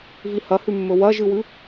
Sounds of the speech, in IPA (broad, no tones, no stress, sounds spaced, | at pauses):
v i h ɐ h ʉ mː ɵ w ɐ ʒ ɨ w ʉ